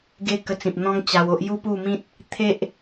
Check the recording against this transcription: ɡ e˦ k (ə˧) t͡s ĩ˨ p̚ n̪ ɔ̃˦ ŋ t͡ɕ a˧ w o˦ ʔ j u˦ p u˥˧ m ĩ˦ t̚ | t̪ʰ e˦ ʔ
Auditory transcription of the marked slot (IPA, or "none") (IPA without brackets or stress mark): ə˧